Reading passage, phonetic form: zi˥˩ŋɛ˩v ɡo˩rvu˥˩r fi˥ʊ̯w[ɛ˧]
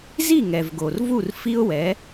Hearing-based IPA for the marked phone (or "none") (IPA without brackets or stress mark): ɛ˩˥